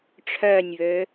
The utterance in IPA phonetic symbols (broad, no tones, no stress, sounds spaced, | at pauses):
ʈ͡ʂʰ œ nʲ β ø